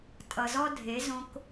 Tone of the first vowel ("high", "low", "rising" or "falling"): low